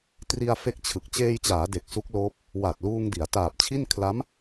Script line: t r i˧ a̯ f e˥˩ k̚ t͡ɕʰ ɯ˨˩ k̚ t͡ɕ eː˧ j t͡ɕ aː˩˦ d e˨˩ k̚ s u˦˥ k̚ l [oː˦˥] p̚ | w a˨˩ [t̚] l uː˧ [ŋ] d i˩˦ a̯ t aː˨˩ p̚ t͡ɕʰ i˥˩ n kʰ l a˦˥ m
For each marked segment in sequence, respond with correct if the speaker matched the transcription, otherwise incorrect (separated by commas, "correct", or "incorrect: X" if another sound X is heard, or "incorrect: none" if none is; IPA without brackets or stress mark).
correct, correct, correct